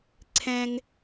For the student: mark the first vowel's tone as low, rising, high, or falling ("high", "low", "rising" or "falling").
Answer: high